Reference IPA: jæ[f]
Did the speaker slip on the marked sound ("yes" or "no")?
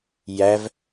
yes